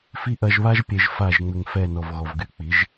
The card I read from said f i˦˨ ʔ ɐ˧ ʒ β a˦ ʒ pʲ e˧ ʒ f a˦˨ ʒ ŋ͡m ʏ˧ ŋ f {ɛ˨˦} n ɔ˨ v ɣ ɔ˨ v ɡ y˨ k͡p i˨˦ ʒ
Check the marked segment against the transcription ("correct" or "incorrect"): incorrect